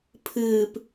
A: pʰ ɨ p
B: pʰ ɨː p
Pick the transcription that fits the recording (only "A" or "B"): B